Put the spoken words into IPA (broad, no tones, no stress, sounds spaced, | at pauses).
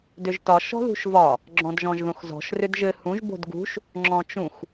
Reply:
d ʏ ʒ t ɒ ʃ ɔ̤ ð ṳ ʃ v ɒ | ɡ͡ǁ ɔ̃ d ʒ ɔ̃ ʒ ð õ x z ɔ̤ ʃ r ʏ d ʒ ɘ h ũ ʒ b o̤ d ɡ ṳ ʃ | ŋ͡ǁ ɔ̃ t͡ʃ ũ x